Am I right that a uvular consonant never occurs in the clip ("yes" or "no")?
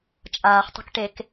no